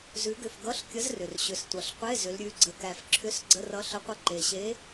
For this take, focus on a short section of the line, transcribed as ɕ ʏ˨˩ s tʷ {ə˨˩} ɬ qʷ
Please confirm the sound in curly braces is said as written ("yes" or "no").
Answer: no